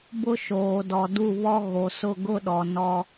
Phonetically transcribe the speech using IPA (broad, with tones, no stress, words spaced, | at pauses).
bʊ˦ʃoː˨dɔ˨ du˦˨βɔ˦ ɣo˨sʊ˦˨ ɡʊ˦ɗɔ˨ nɔ˦